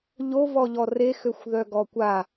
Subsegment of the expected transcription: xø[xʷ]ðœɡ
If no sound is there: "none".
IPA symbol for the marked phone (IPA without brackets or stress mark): xʷ